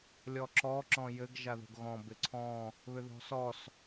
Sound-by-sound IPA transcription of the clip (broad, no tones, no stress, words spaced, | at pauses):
lʲɔǁɔ ǁɔ̃jɘɡ ʒaðo̤ɡɣɔ̃ bɪǀʰɔ̃ | βʏðɔ̤sɔs